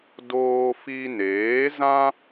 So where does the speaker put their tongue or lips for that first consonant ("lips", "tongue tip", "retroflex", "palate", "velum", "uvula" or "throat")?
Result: tongue tip